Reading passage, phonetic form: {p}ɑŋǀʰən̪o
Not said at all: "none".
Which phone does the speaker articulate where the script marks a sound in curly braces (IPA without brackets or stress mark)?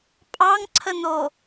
pʼ